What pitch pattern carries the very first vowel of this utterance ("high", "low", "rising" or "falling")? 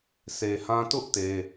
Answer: low